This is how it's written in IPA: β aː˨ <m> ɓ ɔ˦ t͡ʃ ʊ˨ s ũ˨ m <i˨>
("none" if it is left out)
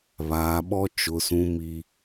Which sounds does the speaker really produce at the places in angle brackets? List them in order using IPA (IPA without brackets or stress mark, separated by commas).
none, i˨